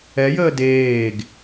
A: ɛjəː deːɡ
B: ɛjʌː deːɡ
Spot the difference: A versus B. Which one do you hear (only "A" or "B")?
A